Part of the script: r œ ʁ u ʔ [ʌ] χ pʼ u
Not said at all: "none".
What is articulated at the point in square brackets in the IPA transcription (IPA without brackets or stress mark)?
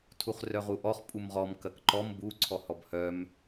ɔ